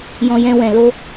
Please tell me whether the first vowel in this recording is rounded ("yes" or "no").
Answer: yes